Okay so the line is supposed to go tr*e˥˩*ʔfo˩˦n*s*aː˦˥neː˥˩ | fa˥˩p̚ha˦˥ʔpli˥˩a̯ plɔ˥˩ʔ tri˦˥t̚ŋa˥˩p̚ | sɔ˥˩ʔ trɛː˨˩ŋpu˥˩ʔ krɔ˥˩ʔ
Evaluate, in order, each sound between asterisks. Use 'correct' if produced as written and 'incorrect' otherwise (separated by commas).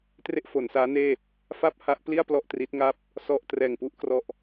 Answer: correct, correct